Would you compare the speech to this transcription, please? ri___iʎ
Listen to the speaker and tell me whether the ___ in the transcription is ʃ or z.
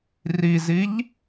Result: z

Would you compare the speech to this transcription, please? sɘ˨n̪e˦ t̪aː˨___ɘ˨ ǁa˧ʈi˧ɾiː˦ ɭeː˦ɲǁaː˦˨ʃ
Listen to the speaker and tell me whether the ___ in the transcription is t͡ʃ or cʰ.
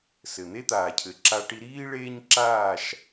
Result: cʰ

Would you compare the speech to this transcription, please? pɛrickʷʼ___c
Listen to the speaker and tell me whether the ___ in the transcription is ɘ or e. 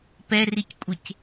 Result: e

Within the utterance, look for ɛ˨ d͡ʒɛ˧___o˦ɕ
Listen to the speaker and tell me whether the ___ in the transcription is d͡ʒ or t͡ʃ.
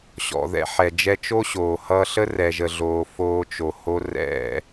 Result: t͡ʃ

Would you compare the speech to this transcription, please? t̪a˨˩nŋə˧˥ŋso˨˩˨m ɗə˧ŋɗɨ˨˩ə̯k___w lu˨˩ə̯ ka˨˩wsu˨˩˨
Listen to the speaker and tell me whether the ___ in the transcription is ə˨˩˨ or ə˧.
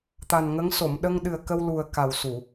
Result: ə˧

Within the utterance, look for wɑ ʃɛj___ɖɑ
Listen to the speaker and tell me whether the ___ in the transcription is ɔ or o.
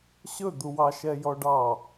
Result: ɔ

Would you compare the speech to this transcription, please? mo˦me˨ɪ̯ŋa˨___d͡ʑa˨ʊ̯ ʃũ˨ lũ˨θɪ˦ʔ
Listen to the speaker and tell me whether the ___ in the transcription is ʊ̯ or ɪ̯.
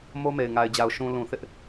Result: ɪ̯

